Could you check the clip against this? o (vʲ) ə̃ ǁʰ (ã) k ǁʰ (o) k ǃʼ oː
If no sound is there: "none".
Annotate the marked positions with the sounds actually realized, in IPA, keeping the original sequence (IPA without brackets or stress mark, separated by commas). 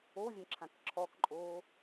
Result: vʲ, ã, ɔ